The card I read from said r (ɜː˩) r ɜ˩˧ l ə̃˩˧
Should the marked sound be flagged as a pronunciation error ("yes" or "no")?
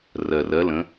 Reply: yes